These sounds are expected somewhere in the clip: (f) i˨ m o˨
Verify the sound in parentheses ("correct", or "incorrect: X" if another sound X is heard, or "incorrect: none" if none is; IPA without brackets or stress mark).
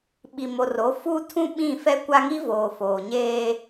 incorrect: ɓ